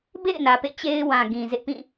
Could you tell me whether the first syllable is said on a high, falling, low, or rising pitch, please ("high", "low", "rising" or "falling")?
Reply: falling